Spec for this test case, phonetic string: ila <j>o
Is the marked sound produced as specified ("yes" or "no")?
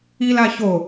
no